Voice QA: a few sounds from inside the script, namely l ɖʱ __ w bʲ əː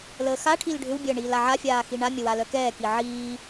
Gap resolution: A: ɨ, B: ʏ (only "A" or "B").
B